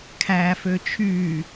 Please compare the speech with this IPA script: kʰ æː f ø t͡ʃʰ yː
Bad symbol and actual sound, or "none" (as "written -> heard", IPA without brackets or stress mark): none